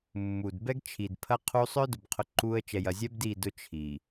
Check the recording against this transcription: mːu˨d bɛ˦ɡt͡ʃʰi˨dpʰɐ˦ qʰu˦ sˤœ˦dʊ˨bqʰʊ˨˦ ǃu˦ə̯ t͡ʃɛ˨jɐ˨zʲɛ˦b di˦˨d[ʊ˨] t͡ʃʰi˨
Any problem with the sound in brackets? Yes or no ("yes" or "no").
yes